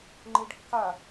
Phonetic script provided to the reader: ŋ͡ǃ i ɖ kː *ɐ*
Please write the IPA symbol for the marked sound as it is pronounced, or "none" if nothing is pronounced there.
a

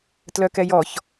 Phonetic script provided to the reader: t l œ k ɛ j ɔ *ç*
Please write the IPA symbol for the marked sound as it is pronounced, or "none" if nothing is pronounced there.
ç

